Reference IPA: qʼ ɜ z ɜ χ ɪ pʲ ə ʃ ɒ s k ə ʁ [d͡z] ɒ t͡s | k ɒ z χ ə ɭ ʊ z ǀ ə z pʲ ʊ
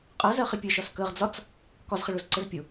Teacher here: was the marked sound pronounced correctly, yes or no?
yes